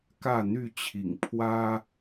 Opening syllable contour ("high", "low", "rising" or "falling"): falling